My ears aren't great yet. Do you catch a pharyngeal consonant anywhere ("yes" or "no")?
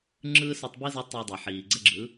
yes